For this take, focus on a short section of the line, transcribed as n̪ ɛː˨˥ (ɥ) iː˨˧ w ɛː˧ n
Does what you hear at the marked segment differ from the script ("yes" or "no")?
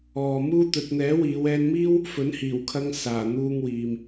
yes